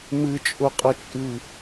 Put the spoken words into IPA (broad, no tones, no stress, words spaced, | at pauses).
mɨt͡ʃʼʊqʼʌt͡ʃʼɨ